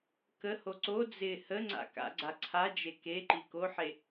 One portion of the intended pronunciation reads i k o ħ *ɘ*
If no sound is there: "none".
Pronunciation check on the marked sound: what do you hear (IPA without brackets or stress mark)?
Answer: e